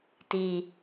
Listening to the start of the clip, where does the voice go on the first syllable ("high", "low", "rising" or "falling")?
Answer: low